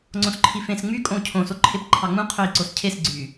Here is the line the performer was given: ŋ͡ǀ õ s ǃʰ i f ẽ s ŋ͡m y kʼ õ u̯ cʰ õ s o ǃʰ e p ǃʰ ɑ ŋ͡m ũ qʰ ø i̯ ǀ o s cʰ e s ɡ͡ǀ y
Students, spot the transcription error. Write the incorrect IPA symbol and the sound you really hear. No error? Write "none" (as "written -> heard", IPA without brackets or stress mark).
none